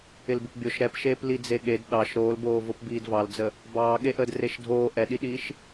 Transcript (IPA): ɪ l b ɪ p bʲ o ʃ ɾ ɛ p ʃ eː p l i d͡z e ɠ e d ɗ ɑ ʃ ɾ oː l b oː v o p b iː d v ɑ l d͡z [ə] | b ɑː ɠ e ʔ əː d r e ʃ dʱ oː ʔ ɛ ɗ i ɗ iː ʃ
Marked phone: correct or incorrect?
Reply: correct